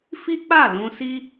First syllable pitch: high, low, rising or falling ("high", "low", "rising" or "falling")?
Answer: high